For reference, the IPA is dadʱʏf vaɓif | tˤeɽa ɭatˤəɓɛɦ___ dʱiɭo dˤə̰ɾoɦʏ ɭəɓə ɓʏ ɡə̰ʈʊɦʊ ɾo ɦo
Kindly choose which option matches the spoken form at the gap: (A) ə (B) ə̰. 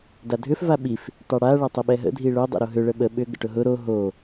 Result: B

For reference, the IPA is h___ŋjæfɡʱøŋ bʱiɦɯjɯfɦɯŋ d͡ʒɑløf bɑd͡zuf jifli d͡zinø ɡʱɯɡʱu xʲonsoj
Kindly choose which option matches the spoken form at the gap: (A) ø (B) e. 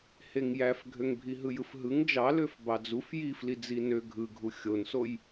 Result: B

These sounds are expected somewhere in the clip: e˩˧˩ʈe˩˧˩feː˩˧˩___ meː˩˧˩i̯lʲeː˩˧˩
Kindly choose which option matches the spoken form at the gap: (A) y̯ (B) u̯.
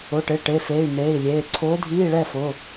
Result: A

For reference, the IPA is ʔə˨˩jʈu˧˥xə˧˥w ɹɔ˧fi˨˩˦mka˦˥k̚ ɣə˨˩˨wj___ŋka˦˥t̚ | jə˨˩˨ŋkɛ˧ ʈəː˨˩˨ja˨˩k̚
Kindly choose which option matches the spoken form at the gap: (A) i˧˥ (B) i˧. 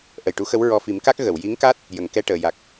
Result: A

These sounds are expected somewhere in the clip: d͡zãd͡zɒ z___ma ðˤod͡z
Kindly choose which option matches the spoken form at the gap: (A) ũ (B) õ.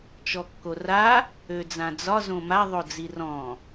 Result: B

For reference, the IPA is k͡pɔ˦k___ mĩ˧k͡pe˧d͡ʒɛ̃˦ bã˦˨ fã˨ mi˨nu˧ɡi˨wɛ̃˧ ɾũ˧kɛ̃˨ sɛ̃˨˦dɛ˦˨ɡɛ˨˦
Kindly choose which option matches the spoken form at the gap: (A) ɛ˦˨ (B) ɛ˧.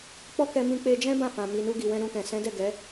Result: B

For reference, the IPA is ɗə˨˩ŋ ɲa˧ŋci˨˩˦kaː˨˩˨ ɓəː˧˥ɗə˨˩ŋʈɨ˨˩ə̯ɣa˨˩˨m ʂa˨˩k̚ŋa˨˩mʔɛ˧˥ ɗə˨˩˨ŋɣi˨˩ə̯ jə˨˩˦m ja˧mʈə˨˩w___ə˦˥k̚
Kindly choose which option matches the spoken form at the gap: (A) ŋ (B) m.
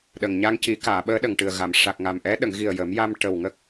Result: A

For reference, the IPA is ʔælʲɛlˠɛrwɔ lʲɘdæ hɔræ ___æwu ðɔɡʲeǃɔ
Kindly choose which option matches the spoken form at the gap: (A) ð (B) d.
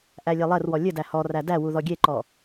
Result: B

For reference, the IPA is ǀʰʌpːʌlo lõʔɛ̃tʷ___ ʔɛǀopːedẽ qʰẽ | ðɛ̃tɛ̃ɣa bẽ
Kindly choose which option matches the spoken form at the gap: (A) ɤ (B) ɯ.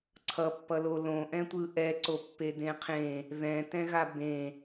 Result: B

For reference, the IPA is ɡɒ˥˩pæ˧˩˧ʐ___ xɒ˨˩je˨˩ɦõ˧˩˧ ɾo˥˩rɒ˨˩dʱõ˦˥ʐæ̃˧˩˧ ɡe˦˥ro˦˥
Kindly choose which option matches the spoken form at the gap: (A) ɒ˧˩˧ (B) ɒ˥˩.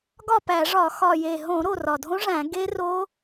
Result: A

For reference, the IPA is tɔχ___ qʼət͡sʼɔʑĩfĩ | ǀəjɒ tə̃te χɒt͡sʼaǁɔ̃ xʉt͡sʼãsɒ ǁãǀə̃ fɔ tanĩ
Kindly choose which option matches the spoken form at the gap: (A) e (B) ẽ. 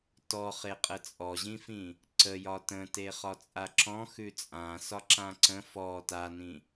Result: A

